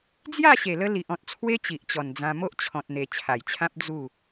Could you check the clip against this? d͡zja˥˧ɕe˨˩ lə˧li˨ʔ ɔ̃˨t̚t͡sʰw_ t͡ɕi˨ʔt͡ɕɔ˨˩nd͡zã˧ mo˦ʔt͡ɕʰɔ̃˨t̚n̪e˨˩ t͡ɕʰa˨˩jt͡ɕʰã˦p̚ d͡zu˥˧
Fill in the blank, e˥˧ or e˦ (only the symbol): e˦